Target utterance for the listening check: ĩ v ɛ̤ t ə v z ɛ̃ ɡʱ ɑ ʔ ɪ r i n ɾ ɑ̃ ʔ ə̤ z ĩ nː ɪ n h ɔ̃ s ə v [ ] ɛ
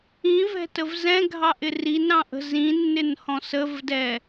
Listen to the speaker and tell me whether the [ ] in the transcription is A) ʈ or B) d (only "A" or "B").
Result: B